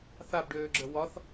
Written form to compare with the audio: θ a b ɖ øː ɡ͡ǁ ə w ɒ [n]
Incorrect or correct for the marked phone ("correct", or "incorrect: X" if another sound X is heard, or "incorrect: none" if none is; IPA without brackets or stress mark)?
incorrect: θ